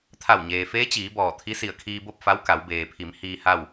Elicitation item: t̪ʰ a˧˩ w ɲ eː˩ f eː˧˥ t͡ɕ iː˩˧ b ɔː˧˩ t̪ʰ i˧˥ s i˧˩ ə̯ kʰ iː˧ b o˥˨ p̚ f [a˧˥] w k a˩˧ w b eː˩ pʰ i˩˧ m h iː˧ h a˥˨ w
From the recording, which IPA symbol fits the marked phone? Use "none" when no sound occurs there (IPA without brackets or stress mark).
a˧˥